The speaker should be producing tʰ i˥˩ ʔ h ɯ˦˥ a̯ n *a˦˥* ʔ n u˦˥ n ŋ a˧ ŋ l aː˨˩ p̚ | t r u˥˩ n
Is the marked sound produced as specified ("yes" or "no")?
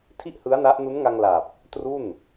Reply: yes